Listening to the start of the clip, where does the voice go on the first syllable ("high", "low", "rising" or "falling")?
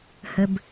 low